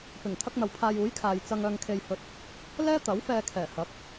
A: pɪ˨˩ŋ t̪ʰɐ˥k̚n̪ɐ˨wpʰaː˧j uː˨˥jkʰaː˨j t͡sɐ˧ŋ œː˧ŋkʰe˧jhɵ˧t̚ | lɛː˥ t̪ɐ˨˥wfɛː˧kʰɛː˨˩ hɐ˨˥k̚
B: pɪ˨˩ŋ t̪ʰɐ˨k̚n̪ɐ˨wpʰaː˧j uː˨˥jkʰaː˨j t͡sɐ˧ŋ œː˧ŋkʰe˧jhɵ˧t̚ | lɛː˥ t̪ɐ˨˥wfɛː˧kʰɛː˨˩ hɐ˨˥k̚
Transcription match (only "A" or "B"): A